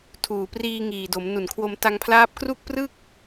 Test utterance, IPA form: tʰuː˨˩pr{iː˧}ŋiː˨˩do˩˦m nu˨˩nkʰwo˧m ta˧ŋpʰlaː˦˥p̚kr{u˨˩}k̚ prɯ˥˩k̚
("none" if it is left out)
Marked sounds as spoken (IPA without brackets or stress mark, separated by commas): iː˧, u˥˩